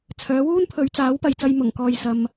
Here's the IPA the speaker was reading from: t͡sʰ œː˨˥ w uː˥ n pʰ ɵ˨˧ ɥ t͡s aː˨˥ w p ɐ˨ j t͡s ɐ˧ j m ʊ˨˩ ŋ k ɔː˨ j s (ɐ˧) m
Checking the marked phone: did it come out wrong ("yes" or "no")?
no